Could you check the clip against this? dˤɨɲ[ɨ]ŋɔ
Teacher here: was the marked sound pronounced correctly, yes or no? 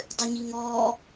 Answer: no